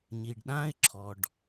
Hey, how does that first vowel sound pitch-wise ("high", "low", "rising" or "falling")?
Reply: low